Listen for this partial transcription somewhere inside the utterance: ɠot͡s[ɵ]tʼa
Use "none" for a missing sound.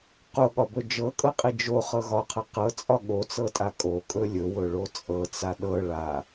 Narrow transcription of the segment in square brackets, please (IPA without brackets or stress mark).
ɤ